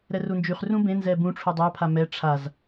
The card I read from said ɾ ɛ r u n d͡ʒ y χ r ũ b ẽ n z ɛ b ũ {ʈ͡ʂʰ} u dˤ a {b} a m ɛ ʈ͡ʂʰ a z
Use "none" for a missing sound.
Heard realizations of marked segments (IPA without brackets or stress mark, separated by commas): ʈ͡ʂʰ, pʰ